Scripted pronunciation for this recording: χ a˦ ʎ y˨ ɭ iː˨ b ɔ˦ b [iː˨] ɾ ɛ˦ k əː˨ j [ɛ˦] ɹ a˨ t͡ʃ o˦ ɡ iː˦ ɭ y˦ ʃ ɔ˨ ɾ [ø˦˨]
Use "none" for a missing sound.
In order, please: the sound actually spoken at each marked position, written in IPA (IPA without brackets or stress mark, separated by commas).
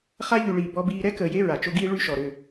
iː˦, e˦, ø˦˨